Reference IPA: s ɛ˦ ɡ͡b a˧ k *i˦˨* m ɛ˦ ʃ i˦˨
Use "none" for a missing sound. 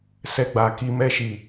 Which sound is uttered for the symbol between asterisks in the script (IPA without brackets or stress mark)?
i˧